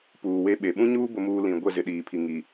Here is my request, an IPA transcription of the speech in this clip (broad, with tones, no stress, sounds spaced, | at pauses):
p uː˨ w e˦ ɓ e˨ ɓ ũ˦ ɲ uː˦ b ʊ˨ m uː˨ l ĩ˨ ɡʷ ɛ˦˨ z ɪ˨ ɗ iː˨ pʰ i˨ ŋ i˨